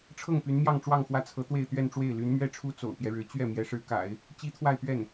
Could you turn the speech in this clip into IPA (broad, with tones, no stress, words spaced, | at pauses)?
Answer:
ʈ͡ʂʰɤ˥˩ŋpy˧˥nmjɑ˥˧ŋʈ͡ʂwɑ˥˧ŋ xwä˥˩t͡sʰɤ˧˥ t̪we˥˧ɪ̯t̪ɥɛ˥˧nʈ͡ʂwe˥˩ɪ̯ ly˧˥n mɥɛ˥ʈ͡ʂʰu˥ t͡so̰˨˩ʊ̯pjɛ˦ɻɻ̩˧˥ t͡ɕɥɛ˥˩ mjɛ˧˥ʂɻ̩˧˥ka̰˨˩˦ɪ̯ | t͡ɕi˥t̪ʰwa˥˧ɪ̯pɥɛ˥˩n